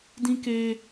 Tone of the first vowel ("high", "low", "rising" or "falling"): high